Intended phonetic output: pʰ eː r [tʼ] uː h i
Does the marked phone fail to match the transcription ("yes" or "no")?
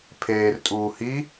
no